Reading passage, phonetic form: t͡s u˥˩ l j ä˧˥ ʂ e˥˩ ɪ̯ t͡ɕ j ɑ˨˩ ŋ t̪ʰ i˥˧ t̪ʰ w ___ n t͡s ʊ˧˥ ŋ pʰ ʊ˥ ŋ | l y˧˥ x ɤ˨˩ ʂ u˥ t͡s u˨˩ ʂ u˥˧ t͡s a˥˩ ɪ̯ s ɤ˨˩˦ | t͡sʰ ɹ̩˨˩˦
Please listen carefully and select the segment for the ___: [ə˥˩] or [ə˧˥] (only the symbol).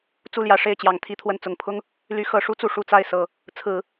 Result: ə˥˩